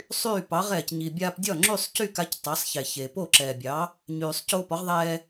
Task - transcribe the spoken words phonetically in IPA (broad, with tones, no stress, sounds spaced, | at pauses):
sˤ yː˥˩ p ɑ˩˥ ʁ ɛː˩ c ɲ i˩ bʲ aː˧ p dʲ ɒ˥˩ ŋ͡ǁ y˥˩ sˤ c y˥˩ k a˧ c tˤ a˩˥ sˤ ç e˩ ç e˩ p o˥˩ ǁ ɛː˩ bʲ ɑ˩˥ | ɲ yː˩ sˤ c oː˧ p ɒ˩˥ ʁ ðˤ ɛː˧